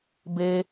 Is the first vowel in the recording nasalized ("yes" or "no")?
no